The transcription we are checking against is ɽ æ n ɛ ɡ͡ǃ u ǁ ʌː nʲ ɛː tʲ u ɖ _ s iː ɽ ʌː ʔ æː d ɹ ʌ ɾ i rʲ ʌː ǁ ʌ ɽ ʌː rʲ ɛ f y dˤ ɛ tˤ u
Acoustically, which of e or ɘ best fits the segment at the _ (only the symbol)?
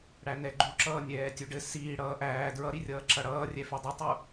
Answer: ɘ